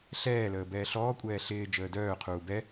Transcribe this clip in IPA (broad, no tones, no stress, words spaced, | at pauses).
ɬɛːləː bɛːɬɔːkʷʼɛː ɬɪː d͡ʒəːdœːqʰuː bɛ